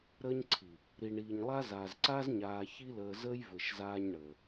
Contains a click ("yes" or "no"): yes